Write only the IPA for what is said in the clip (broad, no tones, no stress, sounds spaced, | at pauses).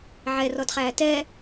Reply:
ʕ ɛ r ɔ d χ æː t ɛ